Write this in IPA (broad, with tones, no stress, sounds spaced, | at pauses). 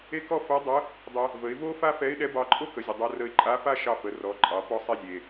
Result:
e˥ k ɔ˥ f o˧˥ dˤ ə˧˥ | dˤ ɛ˧ | v ə˩˧ ɪ̯ v o˥ f a˥ f ɛ˧˥ ɪ̯ ɗ ɛ˧˥ b ɑ˧ ǃʼ o˥ k ə˩˧ zʲ ə˩ dˤ o˧ r ə˧ ɪ̯ ǃʼ a˧˥ f a˥ ʃ ɑ˧ f ə˩˧ r ɔ˩˧ ǃʼ ɑ˩˧ p ɔ˧ sˤ e˧ zʲ e˩